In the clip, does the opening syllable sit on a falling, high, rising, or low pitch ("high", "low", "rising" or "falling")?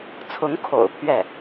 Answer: rising